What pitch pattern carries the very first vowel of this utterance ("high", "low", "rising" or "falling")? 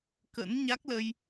rising